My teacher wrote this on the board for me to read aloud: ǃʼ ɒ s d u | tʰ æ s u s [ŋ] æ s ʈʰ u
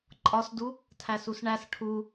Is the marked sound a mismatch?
yes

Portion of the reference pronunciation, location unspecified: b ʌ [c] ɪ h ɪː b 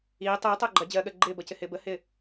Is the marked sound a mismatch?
no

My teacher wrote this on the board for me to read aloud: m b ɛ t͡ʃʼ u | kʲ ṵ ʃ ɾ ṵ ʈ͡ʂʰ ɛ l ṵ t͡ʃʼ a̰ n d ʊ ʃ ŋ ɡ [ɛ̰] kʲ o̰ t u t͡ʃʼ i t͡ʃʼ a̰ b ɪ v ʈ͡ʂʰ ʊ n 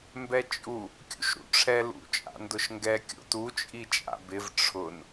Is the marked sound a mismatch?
yes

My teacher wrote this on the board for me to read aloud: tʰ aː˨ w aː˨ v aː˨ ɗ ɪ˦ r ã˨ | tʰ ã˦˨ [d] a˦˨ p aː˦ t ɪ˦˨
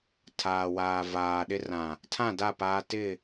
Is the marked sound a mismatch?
no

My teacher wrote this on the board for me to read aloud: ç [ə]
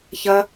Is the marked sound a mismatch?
yes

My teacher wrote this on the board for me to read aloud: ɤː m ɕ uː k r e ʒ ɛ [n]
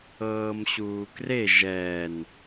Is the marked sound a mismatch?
no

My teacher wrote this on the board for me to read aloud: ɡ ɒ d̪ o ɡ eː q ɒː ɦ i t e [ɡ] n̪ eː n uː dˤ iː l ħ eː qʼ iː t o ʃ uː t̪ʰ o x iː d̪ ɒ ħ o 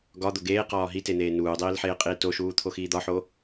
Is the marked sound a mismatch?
yes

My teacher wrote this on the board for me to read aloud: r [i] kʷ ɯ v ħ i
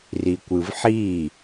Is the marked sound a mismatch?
no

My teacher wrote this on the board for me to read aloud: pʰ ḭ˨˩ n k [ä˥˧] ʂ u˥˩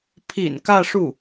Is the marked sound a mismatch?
no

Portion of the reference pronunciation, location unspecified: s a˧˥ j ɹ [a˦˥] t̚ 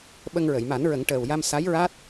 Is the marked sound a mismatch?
no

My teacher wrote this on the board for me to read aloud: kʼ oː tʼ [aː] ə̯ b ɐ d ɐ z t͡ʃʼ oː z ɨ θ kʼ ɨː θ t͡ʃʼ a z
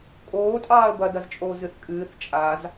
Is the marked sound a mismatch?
yes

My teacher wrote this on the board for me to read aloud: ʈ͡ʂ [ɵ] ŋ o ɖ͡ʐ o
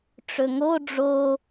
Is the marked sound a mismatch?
no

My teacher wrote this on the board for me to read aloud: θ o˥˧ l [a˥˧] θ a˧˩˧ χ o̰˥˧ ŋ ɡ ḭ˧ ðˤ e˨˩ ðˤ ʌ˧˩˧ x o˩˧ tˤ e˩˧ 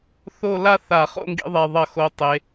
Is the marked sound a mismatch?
no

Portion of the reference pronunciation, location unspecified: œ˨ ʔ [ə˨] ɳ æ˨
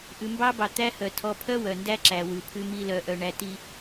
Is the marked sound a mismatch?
yes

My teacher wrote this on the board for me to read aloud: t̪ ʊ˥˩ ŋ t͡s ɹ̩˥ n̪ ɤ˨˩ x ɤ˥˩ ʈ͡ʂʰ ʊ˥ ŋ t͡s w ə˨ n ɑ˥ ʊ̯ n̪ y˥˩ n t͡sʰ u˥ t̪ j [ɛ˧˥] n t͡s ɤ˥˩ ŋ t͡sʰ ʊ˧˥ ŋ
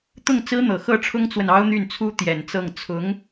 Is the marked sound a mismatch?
yes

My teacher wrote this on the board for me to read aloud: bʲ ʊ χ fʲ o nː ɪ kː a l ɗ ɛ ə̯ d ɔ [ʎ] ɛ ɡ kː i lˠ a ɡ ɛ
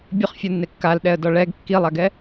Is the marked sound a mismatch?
yes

